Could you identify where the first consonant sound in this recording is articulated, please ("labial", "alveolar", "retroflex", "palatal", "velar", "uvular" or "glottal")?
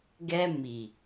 velar